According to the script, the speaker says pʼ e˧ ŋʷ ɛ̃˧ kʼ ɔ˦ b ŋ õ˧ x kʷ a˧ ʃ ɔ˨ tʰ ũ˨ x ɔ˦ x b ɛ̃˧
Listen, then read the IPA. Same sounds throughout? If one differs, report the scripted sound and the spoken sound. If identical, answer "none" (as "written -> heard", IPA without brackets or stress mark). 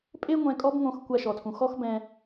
none